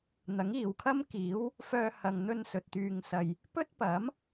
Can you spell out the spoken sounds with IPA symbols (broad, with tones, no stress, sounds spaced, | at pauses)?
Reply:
n̪ ɐ˨˥ ŋ iː˨ w kʰ ɐ˥ m k iː˨˥ w | f œː˧ h ɐ˨ ŋ n̪ ɵ˧ n s ɵ˨ t̚ t̪ yː˨ ŋ s ɐ˨ j | p ɵ˥ t̚ p ɐ˨˥ m